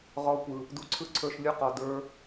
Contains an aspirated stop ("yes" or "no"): yes